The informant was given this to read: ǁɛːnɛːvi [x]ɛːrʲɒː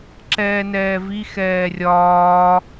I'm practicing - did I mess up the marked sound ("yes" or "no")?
no